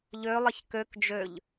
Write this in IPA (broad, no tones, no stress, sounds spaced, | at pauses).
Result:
ʎ ø lˠ ɪ ç k ø k d͡ʒ ø ʎ